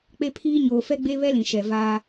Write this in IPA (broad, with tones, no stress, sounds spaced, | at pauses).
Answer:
k͡p e˦ pʰ iː˦ ɲ oː˨ f ɛ˦ ɡ͡b e˦ β ɛ˦ l ĩ˨ ʃ ɛ˨ v aː˦